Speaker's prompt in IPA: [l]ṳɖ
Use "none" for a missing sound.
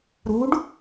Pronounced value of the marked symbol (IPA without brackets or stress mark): ɾ